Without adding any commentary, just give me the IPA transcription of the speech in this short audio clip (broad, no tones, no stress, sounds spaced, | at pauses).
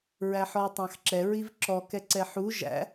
ɹ æ ħ ɔ j tˤ ɑ̃ x ǁ ɛ ɹ i v ǁ ɔ k ɛ ǀ ɛ ħ u ʒ æ̰